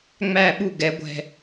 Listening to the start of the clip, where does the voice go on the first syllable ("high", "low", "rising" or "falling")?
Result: falling